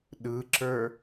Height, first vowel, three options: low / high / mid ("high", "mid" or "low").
high